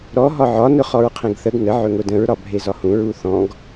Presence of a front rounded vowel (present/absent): absent